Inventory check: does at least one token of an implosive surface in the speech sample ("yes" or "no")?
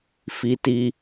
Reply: no